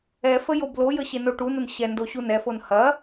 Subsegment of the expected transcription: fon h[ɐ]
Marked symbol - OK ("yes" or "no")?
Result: yes